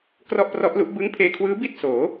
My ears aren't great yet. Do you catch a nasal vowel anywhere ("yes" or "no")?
no